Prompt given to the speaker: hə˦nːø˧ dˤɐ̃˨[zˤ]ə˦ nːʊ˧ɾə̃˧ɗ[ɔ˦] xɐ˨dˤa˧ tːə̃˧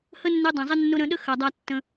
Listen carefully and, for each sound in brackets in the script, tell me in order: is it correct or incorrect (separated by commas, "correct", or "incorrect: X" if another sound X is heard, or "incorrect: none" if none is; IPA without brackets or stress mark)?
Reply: correct, incorrect: ə˦